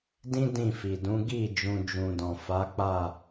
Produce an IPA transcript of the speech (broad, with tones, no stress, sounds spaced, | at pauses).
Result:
d ĩ˦ d ĩ˦˨ f i˨ d ũ˨˦ ɡ i˦˨ d͡ʒ ũ˧ d͡ʒ ũ˨ d ɔ̃˨ f a˨˦ k͡p a˦˨